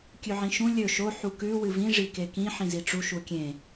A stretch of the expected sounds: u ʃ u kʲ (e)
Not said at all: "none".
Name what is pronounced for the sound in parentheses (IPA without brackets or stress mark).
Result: ẽ